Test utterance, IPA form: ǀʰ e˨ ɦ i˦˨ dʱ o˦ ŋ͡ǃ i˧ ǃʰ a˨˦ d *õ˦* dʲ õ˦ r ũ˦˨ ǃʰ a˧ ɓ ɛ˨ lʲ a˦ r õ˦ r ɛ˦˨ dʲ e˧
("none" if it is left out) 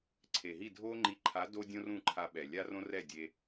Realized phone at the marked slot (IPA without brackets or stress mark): o˦